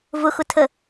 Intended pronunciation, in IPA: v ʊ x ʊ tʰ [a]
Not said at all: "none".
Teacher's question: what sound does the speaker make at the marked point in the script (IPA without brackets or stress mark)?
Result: ə